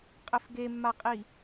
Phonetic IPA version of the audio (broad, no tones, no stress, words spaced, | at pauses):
qʼɘfɡemːaqʼi